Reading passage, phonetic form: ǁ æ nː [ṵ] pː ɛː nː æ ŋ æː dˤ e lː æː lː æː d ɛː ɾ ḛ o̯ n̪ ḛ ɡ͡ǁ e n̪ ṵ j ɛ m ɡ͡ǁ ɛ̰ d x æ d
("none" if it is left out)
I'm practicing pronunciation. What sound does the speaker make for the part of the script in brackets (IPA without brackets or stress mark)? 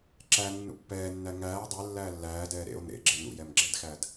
ṵ